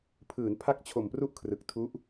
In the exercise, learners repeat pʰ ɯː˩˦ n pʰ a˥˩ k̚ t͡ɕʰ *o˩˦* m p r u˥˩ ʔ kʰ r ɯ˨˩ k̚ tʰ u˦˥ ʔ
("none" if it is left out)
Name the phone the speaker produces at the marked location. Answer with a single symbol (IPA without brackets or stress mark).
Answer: o˨˩